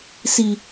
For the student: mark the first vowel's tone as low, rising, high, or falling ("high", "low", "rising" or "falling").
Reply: low